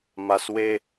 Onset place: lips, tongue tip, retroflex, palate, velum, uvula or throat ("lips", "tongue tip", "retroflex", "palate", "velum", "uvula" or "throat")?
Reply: lips